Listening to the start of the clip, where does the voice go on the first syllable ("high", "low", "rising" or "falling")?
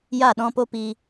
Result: falling